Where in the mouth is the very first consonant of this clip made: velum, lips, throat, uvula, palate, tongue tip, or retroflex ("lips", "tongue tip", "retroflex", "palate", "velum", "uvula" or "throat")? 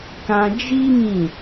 velum